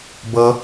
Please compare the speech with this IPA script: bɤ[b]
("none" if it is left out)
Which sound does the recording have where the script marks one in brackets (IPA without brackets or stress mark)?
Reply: none